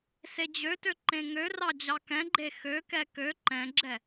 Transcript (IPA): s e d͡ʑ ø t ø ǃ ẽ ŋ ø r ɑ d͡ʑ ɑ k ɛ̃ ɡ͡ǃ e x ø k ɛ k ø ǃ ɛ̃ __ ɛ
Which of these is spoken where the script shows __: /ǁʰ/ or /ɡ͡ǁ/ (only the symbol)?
ɡ͡ǁ